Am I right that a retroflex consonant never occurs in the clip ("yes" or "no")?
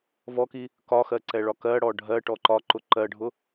no